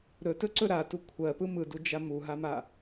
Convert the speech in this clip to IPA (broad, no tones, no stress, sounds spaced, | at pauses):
ɾ ɵ t ɵ ǀ ɵ ɾ a t u kʷʰ ɜ p ɯ m ɯ d u d͡ʒ a m u ɦ a m a